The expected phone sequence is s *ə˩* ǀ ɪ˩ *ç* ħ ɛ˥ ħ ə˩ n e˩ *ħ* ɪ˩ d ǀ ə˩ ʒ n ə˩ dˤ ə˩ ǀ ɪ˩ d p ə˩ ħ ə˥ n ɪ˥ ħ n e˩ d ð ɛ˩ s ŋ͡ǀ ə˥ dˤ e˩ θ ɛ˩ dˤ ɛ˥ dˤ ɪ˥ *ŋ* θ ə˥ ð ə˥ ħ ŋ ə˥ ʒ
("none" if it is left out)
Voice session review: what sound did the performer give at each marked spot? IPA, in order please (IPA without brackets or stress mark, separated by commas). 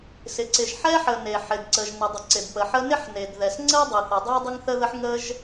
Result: ɪ˩, ʒ, ħ, ŋ